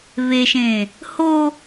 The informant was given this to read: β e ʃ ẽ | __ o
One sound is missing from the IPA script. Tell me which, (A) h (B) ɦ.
A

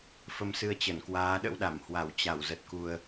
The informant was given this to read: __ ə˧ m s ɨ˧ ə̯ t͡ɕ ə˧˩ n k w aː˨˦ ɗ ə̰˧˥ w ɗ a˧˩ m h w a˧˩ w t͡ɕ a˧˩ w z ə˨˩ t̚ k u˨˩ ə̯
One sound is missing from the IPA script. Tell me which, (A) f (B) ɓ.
A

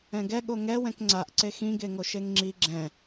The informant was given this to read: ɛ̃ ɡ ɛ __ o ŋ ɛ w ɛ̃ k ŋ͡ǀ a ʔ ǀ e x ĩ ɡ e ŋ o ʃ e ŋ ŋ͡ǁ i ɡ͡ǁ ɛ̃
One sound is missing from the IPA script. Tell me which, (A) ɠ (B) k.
A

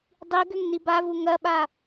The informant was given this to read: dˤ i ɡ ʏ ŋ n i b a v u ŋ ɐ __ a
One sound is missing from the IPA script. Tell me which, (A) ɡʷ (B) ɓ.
B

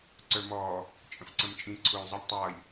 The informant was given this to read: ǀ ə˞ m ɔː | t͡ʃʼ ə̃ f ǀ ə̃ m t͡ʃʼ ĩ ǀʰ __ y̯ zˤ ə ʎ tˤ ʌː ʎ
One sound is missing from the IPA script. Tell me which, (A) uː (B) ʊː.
B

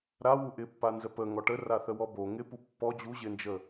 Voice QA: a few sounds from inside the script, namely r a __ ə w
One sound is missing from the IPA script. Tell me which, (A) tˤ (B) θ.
B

